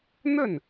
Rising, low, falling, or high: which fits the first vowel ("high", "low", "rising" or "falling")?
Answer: falling